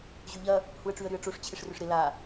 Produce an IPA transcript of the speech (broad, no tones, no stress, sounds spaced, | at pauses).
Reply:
ʑ y ʎ ɐ | h u ə̯ ʈ͡ʂ y ə̯ ɾ y ə̯ ʈ͡ʂ o ʂ t͡ɕʰ ɪ ʂ r ʏ ʂ ɾ ɪ l a